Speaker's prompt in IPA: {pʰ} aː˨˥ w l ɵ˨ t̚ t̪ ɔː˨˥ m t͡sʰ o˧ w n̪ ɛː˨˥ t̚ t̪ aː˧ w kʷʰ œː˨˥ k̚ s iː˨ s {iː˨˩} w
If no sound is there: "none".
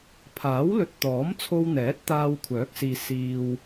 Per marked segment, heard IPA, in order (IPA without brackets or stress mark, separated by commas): pʰ, iː˨